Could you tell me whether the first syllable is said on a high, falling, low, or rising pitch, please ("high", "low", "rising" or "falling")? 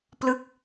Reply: falling